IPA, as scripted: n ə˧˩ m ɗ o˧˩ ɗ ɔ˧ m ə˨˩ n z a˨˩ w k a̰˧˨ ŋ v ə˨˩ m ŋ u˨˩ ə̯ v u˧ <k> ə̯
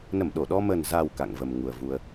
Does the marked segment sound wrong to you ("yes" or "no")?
yes